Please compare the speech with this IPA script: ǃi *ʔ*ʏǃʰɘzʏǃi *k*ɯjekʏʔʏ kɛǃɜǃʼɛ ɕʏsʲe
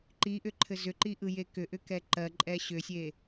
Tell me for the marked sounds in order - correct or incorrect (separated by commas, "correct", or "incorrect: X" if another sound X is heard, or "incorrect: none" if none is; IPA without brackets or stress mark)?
correct, incorrect: ʔ